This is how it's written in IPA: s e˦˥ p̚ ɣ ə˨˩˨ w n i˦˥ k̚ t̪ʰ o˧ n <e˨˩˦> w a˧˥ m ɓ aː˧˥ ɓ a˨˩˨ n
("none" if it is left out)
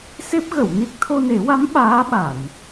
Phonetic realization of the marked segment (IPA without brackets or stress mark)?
e˨˩˦